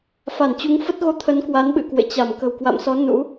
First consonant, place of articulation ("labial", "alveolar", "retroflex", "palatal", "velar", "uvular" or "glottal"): labial